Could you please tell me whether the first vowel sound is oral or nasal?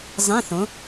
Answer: nasal